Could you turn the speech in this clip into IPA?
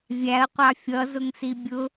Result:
vʲ æ ə̯ qʷ ɑ fʲ ʌ z ʊ ŋ s i bʲ ʊ

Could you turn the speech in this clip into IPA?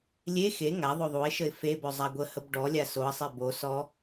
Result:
lʲ e x e ŋ a ðˤ o ðˤ u ɪ̯ ʃ ə ɪ̯ f e b ɵ zˤ a ɡʷ ə h ə b ɖ ɔ lʲ a s o ə̯ sˤ e b o s ɔ

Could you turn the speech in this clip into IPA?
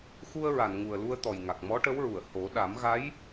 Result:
x u˧ ə̯ ɹ a˨˩˨ n ŋ u˨˩ ə̯ l u˧ ə̯ t̪ ɔ˨˩ j ŋ a˨˩ k̚ m ɔ˧˥ ʈ ə˧˥ w ɹ u˨˩˨ ə̯ h o˨˩˦ ɗ a˨˩˦ m ɣ a˧˥ j

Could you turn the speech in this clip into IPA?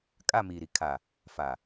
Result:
kʼ a˦˨ m iː˨ ɾ i˨ kʰ a˨ | f a˨

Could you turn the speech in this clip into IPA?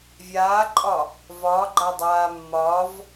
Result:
vʲ aː ǃʼ ɒ | v ɒː ɡ͡ǃ a dˤ aː mː ɒː v

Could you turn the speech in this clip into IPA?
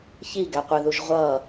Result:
ç i ɡ æ qʷ ɪ ð u ʒ ʁʷ ʌ

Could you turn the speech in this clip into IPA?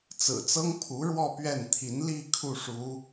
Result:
t͡s ɹ̩˨˩ t͡s ɤ˥ ŋ pʰ u˧˥ ɻ w ɔ˥˧ p ɥ ɛ˥˩ n t̪ʰ i˧˥ n l i˥˧ kʰ u˥˩ ʂ u˧˥

